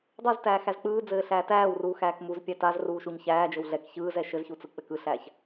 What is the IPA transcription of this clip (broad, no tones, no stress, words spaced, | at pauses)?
dˤuztæː xæzk͡pɯːd͡zɘː ɬæːtæːwruː xæːkmuzpʲæ taz ruːʃuɲçæːd͡ʒɘw ɮɛk çɯːzɛ ʃɘzçu t͡sɯk͡pɘkɯɬæːç